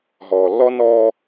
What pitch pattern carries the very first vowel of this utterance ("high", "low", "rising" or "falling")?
low